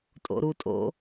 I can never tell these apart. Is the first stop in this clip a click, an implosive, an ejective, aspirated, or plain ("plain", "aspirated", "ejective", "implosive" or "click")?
ejective